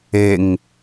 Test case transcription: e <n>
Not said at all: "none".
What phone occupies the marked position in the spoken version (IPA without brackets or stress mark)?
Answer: ŋ